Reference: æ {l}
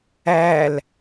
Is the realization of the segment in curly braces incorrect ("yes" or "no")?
no